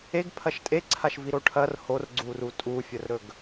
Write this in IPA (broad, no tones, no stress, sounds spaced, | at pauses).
e ɡ pʰ ɐ ʃ tʼ e ǀʰ a ʃ v i ɾ o ʈʰ ɐ r h o r ɡ͡ǀ u r u tʼ u fʲ ɐ r ɾ ɵ ɡ